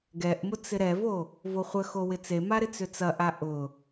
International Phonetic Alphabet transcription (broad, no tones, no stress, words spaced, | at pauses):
ɡɛʔmʊ t͡sɪɾɛvo | voχʷəxo wɪt͡sema ɾɪt͡sʏt͡sɐʔa ʔʊ